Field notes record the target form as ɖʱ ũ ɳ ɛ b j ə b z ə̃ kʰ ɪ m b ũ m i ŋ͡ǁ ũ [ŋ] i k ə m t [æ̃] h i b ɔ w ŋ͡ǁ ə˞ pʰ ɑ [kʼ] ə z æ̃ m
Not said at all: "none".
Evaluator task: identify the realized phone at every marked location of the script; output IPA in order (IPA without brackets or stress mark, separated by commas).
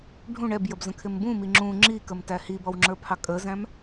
ŋ͡ǁ, æ, kʼ